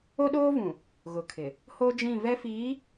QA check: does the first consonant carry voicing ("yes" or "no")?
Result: yes